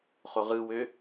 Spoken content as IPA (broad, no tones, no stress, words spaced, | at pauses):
χoʁɯwø